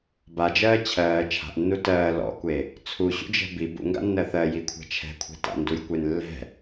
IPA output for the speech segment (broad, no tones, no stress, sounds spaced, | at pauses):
b a d͡ʒ ɜː t͡ɕʰ ɜː t͡ʃʰ a̤ ʔ nː u t ɜː l ɔ̰ kʷ e | t͡sʰ u ɕ ṵ d͡ʒ ɛ̤ b i b ṵ ŋ ɡ a̰ nː ɜ θ ɜ j i kʷʰ ɛ̤ t͡ʃʰ ɛ̤ kʷʰ ɛ̤ t a̰ n d u j kʷ e n lː ɛ̤